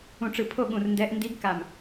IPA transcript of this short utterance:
ũ˧˩ʈ͡ʂɯ˧˩ pʰo˥˧ɠũ˧˩rndɛ˧˥ʔ ndi˧˥ɡka˧˩m

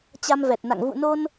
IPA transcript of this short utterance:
t͡ɕa˧mvɛ˨˩t̚na̰˧˨ŋ vṵ˧˨no˧n

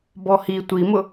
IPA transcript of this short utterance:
bɔhi tʷimʊ

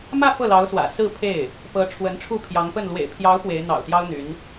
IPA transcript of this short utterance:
mä˥˧ fɤ˥˩lɑ˧˥ʊ̯swä̰˨˩ sɹ̩˥˧pʰe˥˩ɪ̯ | pɤ˧˥ ʈ͡ʂʰwə˧˥nʈ͡ʂʰu˥˩pʰjɑ˧˥ŋpə˥˩n lwḛ˨˩ɪ̯pʰjɑ˧˥ʊ̯ pwe˧˥ɪ̯ n̪ɑ̰˨˩ʊ̯t̪jɑ˥ʊ̯ n̪y˧˥n

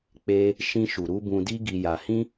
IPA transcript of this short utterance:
k͡pe˦ | ʃĩ˧ʃu˨ɾu˧ bũ˧di˦ɡi˧ja˧ hĩ˦

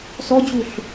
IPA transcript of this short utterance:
sɔd͡ʑuɬ

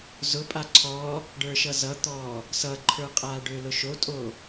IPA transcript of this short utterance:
zʊpʼa ǀʰɔ | ɖə˞ʃʌzʌt̪ɔː | sʌǃʰə˞qʼaː ɖøːlʊʃotʼo

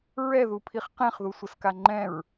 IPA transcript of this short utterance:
ɹɛðupʰiχ qɛ̃χðusʷəska ŋ͡ǃɛ̃ɹ

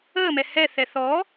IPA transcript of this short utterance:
əːmɛ hɛθɛ θɔ

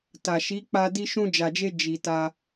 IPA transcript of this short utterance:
ta˨ʃi˨˦ k͡pa˧ di˧ʃũ˧d͡ʒa˨d͡ʒe˧ d͡ʒi˨ ta˧

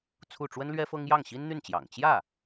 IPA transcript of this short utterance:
t͡sʰu˥˩ ʈ͡ʂwə˥nlɥɛ˥fɤ˥ŋ jɑ˥˩ŋɕi˥nn̪y˥˩nt͡ɕjɑ̰˨˩ŋ t͡ɕjä˥˩

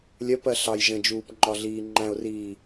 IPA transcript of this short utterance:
lʲɜpɜ ɬɑj ʒə̃d͡ʒuːp ŋ͡ǃɒɮiːŋ͡ǃæ̃ʊ̯riː

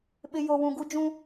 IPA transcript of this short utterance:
ɓɪ˨ jo˨wũ˨ ɡu˦d͡ʒũ˦

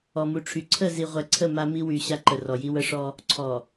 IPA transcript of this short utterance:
ɔ˨mu˨ʈ͡ʂʰy˨ ǀʰə˦˨zi˨ʁʷɛ˨ ǀʰə˦˨ ma˦mi˦ wy˨ ɕa˦ǃə˨rɔ˨ji˦ wə˦ʂɔ˦ | ǀʰɔ˨

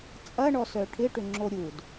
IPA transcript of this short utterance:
t͡sʼɐɳɔsœ ʈʰɪʈʏŋ͡ǁo ɾʲud

